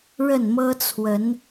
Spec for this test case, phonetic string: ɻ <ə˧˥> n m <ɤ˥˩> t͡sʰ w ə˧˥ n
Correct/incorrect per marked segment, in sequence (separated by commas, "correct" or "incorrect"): incorrect, incorrect